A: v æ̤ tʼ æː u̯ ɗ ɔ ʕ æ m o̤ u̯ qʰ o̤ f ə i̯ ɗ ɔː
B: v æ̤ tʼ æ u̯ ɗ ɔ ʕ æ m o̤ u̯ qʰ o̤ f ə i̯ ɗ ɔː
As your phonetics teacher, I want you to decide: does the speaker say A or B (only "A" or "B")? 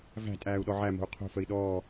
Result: A